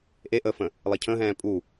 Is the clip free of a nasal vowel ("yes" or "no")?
no